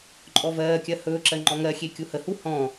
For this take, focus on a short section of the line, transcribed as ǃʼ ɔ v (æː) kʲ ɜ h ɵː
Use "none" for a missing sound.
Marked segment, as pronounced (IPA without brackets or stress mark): ɜː